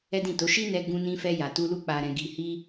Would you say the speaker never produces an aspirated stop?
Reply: yes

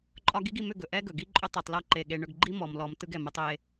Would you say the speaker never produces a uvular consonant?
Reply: yes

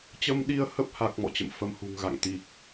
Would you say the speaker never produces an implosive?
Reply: no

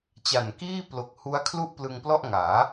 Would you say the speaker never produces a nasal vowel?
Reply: yes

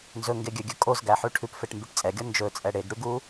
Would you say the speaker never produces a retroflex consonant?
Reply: no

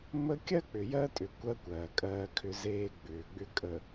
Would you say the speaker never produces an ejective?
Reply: no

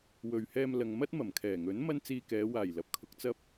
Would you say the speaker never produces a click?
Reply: yes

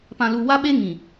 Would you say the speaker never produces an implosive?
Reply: no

